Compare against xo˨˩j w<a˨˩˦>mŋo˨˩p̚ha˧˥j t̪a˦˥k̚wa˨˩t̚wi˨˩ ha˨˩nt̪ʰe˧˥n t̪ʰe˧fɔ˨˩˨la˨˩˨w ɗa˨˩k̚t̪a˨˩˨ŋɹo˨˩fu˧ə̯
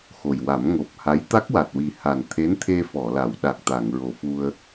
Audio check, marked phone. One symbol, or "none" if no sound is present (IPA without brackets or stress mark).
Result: a˨˩˦